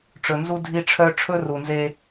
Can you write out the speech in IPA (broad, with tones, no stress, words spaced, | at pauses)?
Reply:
ʈ͡ʂɵ˨nzu˦ dʱi˦ʈ͡ʂʰœ˦ ʈ͡ʂʰɵ˦ru˨nze˦